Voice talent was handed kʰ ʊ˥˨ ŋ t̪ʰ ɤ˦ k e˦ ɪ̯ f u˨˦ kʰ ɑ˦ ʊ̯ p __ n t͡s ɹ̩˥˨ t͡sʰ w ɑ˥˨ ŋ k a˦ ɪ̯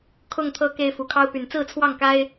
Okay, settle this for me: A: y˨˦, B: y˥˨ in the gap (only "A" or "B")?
A